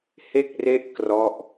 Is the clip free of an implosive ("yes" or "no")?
yes